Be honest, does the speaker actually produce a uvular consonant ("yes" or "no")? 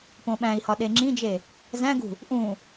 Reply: no